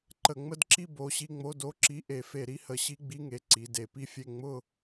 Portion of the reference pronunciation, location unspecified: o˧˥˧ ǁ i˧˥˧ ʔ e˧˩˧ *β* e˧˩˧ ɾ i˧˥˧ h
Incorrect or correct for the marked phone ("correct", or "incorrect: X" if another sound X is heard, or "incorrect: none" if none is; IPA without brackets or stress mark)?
incorrect: f